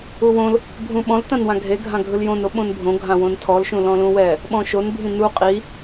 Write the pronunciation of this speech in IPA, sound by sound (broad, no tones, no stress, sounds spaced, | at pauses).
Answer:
u w õ l | bʱ ũ ɓ ɔ̃ l t ã n w ã ɡʱ e ɡʱ ã ɡʱ ɯ l j õ n o ɓ õ n bʱ õ ɡʱ ã w õ n tʰ ɔ l ʃ ũ l ɔ̃ l ũ w ɛ | ɓ ɔ̃ ʃ o n bʱ ĩ n u qʼ i